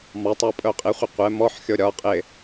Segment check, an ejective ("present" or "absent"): present